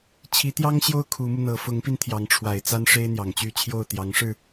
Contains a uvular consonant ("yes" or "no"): no